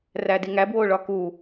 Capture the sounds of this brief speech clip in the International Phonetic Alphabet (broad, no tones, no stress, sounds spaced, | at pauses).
r æ d i ŋ æ b w o ɭ ɒ k u